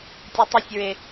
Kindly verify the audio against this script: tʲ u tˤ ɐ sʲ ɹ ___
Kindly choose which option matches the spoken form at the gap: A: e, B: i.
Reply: A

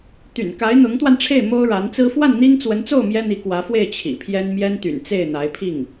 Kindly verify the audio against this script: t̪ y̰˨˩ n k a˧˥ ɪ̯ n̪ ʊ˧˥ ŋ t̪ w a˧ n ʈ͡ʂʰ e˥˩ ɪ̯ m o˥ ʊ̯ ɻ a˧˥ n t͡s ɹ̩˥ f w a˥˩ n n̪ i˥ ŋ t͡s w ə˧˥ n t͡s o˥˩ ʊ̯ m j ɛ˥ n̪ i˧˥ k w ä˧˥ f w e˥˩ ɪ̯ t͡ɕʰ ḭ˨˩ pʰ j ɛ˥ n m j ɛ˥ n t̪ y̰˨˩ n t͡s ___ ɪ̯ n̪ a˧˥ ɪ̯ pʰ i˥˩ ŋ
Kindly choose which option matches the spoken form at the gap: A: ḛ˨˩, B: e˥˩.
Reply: B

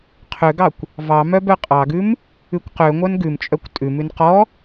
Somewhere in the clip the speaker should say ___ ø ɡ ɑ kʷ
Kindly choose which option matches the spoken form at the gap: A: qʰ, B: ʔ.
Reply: A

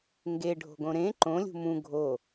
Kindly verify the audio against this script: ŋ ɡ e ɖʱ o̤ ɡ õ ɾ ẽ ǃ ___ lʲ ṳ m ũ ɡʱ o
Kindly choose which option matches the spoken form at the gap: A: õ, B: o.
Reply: A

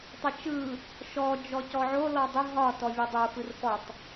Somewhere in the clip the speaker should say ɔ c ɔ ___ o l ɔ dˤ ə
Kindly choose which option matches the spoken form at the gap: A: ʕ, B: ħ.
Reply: A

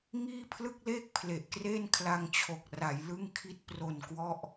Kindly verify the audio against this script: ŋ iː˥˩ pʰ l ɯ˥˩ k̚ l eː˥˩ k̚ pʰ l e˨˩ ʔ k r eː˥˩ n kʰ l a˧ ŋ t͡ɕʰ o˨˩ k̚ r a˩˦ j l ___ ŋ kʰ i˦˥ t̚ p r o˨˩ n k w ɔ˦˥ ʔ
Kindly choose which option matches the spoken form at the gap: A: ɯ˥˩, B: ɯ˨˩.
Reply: A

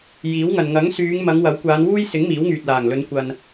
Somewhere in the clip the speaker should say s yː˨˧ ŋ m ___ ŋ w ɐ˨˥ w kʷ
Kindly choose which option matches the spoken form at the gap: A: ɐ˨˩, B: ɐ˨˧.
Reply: B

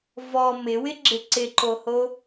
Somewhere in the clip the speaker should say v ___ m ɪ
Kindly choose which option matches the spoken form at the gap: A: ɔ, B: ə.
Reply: A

